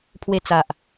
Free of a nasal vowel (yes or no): yes